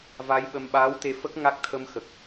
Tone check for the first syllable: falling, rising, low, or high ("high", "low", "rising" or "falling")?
rising